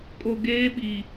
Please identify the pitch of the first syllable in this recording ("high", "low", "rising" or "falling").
low